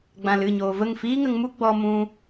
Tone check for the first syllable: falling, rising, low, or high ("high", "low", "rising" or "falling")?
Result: low